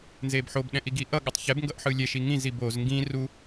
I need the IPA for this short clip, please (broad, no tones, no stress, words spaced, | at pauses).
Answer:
nzebħob ɗɛ̃ʔiɡiʔʌ ɠatˤçɛb ŋɡʌʔħɯlʲɛ ʃiŋĩz iboz ŋɡĩ ru